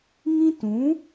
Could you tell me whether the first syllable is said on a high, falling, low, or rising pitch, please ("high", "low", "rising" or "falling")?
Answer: high